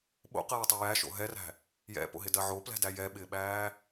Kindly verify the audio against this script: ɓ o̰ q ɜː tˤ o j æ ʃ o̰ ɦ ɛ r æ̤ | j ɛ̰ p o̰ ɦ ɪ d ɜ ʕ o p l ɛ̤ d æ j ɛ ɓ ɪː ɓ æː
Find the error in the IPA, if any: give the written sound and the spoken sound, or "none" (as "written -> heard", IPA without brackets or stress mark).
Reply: none